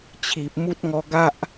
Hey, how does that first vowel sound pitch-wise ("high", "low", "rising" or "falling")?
low